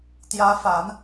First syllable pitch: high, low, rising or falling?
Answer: rising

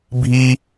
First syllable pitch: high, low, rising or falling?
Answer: high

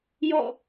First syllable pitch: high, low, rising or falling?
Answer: falling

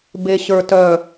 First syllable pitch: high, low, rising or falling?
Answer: low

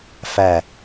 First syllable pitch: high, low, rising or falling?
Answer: falling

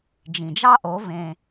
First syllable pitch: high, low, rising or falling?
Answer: low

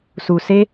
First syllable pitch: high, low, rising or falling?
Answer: low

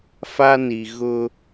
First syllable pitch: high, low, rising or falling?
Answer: high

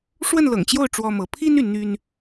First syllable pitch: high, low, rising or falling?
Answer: falling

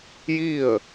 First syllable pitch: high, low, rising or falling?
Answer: falling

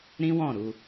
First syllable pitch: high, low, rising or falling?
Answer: high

